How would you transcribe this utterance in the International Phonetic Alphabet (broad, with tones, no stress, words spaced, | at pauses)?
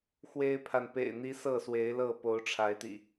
xwe˦ɪ̯pʰa˨n pḛ˨˩ɪ̯n̪i˨˦ sɤ˥˨swe˨˦ɪ̯lɤ˥˨ po˨˦ʊ̯ʈ͡ʂʰa˨˦ɪ̯t̪ḭ˨˩